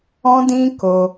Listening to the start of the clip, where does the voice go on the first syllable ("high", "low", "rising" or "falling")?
high